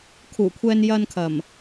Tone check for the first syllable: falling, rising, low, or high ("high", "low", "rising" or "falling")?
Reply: low